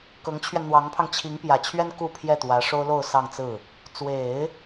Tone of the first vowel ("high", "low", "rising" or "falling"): rising